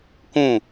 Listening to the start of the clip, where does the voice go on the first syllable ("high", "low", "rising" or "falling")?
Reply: falling